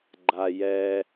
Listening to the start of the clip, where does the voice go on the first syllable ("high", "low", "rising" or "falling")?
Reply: low